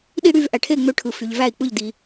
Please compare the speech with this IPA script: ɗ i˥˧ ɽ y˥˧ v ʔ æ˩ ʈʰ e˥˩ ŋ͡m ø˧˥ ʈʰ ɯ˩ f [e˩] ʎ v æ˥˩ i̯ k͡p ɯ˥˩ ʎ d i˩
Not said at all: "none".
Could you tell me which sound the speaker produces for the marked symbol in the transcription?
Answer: y˩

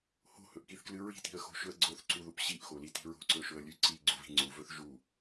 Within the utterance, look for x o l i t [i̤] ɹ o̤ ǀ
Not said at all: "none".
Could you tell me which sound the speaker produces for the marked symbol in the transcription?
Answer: i̤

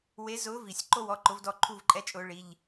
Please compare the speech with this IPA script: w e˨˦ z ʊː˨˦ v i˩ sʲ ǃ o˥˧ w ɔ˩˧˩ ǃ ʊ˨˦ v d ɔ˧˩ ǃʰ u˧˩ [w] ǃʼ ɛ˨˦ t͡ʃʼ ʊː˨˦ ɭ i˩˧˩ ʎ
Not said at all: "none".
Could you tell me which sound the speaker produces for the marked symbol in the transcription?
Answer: v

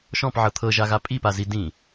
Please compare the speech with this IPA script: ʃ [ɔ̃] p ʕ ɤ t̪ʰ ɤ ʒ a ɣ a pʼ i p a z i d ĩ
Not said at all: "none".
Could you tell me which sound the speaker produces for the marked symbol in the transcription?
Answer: ɔ̃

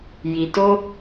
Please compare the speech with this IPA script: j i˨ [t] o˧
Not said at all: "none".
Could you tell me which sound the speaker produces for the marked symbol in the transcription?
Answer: t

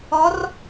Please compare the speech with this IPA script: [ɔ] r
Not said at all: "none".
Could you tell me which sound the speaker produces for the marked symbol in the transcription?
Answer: ɔ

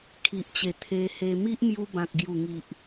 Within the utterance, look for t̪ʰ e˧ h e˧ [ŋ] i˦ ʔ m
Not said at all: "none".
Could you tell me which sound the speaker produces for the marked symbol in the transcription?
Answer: m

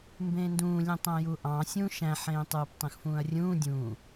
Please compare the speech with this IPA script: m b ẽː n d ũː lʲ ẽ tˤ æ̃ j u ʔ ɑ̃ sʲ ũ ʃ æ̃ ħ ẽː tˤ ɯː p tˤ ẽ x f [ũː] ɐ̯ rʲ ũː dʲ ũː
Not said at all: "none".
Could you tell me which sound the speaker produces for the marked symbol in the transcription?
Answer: ũː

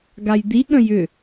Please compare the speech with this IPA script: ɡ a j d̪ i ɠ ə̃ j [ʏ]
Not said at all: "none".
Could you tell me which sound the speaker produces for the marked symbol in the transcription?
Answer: ʏ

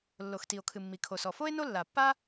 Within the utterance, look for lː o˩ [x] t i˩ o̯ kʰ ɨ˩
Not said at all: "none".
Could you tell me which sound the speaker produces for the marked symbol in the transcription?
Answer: x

